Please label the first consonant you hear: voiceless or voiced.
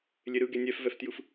voiced